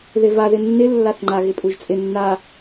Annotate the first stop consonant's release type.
click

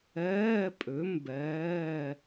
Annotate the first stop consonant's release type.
ejective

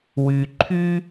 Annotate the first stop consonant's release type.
click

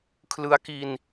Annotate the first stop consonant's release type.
aspirated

